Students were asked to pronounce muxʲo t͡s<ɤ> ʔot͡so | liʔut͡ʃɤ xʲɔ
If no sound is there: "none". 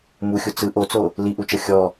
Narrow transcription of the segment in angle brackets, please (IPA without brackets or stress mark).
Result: ɯ